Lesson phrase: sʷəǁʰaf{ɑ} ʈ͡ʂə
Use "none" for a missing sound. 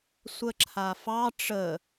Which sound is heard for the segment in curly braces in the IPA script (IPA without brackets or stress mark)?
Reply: ɑ